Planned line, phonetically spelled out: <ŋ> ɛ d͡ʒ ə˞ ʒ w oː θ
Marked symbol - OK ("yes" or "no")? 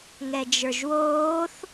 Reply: yes